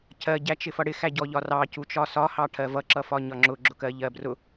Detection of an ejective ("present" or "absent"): absent